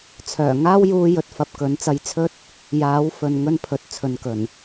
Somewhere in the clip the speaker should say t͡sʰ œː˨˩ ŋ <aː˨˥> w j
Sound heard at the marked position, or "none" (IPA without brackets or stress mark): aː˥